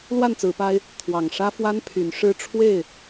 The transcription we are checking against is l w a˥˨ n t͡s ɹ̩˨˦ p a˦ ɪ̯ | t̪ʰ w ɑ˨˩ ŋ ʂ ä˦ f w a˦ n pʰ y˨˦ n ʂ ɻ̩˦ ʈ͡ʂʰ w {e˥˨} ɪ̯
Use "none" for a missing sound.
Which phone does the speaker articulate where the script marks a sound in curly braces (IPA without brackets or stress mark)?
e˥˨